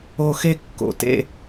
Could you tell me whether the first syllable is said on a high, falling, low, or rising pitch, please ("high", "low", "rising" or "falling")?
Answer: high